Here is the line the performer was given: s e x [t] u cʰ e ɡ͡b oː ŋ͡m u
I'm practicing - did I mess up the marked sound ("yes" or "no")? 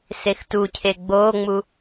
no